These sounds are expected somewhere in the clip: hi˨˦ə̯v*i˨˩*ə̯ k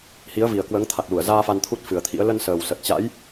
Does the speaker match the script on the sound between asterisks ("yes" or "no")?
yes